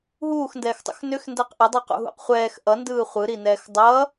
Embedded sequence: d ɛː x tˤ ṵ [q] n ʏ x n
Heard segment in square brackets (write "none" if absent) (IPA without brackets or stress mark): x